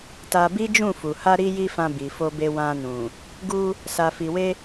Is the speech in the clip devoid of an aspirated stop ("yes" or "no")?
yes